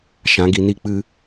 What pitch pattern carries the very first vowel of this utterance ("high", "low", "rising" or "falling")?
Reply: rising